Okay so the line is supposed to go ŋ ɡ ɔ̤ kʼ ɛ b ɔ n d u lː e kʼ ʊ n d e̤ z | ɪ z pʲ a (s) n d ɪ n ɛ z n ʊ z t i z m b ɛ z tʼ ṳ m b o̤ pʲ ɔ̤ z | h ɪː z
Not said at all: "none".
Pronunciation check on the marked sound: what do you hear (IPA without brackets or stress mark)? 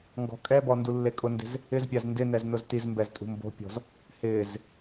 z